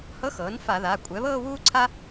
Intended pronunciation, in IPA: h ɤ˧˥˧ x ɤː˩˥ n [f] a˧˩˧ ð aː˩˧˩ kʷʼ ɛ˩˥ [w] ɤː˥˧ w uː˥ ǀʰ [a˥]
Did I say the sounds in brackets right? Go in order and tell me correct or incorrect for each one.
correct, incorrect, correct

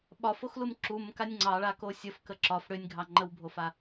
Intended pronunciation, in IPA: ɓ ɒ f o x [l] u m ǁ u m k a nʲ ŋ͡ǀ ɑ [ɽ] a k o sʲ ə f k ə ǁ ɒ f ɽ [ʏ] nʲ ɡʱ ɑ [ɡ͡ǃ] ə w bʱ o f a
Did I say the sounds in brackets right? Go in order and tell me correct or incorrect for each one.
correct, incorrect, correct, incorrect

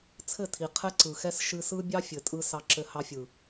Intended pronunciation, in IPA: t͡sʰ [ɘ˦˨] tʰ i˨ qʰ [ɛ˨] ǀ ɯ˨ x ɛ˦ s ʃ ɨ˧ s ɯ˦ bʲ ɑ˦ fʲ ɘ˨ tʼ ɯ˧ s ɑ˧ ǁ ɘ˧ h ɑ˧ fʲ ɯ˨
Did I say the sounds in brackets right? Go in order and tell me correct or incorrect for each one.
correct, incorrect

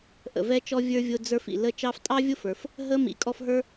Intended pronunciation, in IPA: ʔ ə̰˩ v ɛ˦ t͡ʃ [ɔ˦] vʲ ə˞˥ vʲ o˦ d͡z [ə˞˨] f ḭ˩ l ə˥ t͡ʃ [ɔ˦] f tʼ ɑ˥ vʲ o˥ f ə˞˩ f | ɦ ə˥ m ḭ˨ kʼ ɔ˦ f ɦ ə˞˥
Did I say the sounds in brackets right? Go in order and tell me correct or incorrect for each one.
correct, incorrect, incorrect

